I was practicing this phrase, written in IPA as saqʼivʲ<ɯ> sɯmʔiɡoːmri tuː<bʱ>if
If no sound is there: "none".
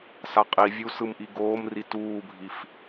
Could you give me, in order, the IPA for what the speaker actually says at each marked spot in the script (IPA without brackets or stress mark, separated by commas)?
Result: u, bʱ